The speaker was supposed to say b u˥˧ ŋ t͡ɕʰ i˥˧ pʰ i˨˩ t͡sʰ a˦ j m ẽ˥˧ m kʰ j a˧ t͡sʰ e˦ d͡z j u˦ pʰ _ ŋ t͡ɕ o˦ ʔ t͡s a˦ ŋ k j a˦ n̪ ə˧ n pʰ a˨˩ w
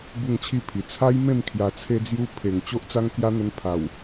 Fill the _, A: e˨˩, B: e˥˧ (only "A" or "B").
A